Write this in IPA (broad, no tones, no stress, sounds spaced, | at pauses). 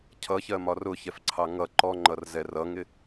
cʰ ʌ ç ɜ m ɒ r ʊ ç ɛ f ǀʰ ɑ ŋ ʌ ǃ ɔ ŋ͡ǃ ʌ r z ɛ r ʌ ŋ ɪ